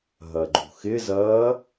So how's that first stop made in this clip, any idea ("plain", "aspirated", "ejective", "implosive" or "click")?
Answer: click